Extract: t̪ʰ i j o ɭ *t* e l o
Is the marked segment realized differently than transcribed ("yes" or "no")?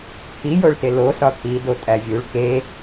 no